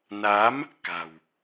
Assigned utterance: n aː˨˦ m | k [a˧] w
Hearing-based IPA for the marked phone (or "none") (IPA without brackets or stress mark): a̤˨˩